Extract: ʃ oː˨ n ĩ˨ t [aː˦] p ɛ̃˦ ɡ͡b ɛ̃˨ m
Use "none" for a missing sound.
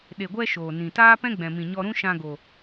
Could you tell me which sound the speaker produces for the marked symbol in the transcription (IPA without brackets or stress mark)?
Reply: aː˦